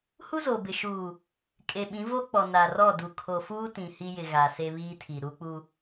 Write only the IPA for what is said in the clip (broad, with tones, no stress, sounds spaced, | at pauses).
h u˦ z o˨ b ɪ˨ ʃ uː˨ | kʼ e˨ ɓ ĩ˨˦ v o˦ k͡p ɔ˨ n a˨ r ɔ˦˨ d u˨ kʰ o˨ f uː˦ t ĩ˨ h iː˦ j ɪ˨ ɣ a˨ s e˦ β iː˦ tʰ i˨ ɾ u˦ k͡p u˦